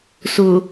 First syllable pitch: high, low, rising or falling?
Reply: low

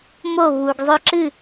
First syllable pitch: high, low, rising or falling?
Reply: falling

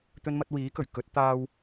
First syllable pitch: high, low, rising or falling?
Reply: high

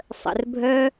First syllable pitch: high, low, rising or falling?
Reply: low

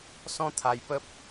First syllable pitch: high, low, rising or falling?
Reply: high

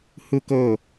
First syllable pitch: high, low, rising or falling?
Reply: high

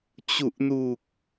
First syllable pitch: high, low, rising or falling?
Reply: low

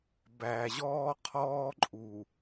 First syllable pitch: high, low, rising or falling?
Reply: low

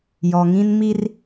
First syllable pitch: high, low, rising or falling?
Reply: low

